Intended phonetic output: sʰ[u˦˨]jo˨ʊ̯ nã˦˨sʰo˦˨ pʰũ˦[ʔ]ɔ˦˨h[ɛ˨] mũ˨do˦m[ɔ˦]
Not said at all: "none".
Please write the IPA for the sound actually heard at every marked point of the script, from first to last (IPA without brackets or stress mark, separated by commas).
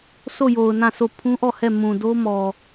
o˦˨, ʔ, ɛ˦˨, ɔ˨